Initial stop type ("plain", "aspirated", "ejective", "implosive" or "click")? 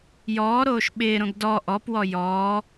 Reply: implosive